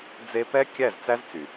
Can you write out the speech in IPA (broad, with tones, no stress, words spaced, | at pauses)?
d͡ze˧pɛ˦ kʲæ˦˨zt͡sæ˦z t͡sy˨